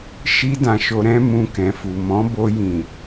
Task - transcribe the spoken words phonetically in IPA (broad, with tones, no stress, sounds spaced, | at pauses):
ʃ i˦ d ã˧ ʃ o˧ ɾ ɛ̃˦ m ũ˧ k ɛ̃˨ f u˨ m ɔ̃˨˦ b o˧ j ĩ˨